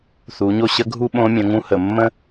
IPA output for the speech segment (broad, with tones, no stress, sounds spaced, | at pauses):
θ u˩˧ ɲ o˥ ɕ ə˧˥ ɡʱ u˥ ɓ õ˧˥ mʲ ə̃˩˧ ŋ ũ˧˥ h ə˩ mː ə̃˥